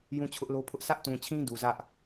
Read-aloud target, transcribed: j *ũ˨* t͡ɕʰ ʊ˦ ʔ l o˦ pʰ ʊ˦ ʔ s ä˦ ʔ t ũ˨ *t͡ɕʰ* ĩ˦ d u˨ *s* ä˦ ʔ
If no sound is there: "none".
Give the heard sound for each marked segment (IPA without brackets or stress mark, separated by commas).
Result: ũ˦, t͡ɕʰ, z